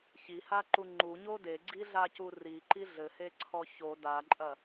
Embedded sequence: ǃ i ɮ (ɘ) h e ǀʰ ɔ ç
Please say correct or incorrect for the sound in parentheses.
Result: correct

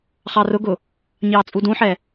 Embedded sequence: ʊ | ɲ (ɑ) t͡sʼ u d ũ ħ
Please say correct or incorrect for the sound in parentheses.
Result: incorrect: ɑː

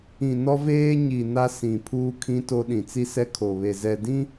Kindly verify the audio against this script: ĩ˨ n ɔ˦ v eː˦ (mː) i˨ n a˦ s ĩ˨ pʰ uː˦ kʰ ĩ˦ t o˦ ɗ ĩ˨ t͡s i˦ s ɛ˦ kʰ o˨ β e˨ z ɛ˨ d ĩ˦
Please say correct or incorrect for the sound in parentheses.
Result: incorrect: ɲ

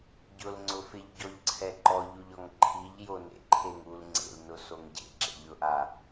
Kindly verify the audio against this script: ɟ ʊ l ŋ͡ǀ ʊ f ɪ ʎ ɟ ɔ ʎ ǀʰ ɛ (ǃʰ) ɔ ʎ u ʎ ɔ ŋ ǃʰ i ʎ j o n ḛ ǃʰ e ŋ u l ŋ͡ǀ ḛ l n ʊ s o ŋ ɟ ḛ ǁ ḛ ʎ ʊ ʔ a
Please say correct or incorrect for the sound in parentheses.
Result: incorrect: ǃ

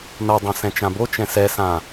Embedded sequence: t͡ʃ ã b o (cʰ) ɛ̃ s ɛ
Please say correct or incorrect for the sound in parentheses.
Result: incorrect: t͡ʃ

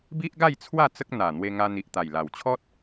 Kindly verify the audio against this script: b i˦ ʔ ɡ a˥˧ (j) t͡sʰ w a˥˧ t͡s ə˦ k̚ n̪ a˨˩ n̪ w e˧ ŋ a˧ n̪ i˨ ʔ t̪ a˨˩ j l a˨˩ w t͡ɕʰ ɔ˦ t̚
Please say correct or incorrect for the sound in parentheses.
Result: correct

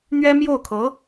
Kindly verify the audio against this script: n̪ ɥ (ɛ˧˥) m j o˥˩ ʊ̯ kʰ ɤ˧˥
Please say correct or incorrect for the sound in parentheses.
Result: incorrect: ɛ˥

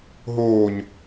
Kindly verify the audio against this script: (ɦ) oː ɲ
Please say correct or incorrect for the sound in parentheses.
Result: correct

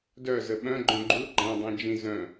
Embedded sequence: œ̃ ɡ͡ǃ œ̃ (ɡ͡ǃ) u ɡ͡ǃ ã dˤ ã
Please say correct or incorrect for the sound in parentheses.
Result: correct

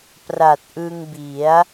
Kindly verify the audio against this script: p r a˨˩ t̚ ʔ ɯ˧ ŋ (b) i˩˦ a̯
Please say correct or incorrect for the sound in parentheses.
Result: correct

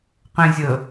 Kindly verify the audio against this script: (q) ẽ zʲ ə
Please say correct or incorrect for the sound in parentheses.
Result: correct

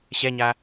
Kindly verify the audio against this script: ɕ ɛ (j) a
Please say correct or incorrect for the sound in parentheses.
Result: incorrect: ɲ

